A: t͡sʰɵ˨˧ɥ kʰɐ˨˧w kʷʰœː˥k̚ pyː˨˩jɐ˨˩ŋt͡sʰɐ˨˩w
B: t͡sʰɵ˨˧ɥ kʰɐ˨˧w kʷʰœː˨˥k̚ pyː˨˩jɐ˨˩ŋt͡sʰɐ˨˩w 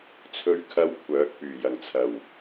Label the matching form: B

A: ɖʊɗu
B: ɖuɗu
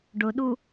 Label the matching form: A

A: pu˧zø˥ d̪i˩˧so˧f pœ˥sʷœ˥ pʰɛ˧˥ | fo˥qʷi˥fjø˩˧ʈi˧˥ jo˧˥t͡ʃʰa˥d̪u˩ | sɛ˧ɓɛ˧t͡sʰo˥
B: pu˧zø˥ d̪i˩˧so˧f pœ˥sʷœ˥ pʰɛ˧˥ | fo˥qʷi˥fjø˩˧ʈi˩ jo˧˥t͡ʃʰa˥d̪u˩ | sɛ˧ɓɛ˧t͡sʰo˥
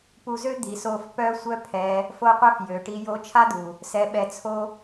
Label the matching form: A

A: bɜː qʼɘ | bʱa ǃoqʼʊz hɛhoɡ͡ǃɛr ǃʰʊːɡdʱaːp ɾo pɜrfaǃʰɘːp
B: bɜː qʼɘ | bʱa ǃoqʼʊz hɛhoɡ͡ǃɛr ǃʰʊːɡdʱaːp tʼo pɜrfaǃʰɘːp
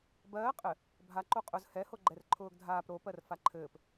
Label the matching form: A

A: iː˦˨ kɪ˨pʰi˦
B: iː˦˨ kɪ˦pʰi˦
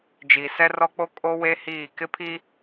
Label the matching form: B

